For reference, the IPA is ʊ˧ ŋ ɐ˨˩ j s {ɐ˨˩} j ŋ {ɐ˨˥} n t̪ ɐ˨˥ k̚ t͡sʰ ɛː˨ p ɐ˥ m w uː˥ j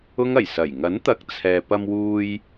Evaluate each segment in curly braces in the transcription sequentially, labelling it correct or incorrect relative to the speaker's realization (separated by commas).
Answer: correct, correct